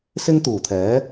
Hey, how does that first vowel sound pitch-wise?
high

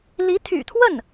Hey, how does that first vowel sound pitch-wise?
rising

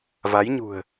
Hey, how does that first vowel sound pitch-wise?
rising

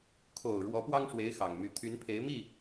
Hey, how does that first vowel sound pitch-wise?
low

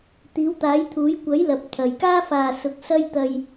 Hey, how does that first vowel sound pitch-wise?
rising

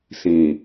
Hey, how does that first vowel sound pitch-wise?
low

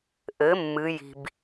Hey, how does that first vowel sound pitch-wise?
rising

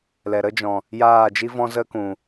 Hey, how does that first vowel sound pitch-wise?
low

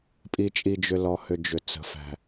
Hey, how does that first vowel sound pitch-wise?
low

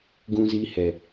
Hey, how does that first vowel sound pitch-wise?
low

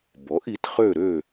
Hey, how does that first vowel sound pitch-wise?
rising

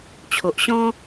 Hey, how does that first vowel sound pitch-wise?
low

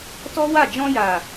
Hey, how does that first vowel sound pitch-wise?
high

